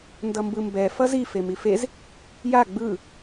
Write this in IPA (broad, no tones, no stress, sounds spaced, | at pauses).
n d ʌ m b ɯ m b ɛ f ʌ z i f e m i f e z | j a ɡ͡b ɯ